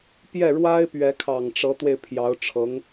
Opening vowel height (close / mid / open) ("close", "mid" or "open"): mid